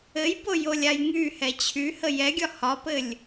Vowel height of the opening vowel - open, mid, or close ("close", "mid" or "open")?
mid